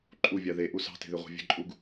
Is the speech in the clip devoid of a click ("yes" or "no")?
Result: no